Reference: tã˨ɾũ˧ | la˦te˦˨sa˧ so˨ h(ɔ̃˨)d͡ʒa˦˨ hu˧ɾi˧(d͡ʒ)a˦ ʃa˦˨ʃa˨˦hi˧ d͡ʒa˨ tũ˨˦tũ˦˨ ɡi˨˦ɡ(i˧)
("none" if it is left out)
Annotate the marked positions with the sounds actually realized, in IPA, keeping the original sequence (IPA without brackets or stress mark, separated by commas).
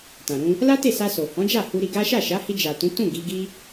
ɔ̃˨˦, ɡ, i˦